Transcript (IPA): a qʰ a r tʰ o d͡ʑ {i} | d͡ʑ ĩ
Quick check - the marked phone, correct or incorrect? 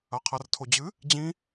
incorrect